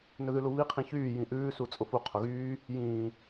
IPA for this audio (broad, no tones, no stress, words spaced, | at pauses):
nɵðʉluβi qʰĩçyː jĩʔʉː sut͡sʼʊfu qʰʊɣyː | jĩː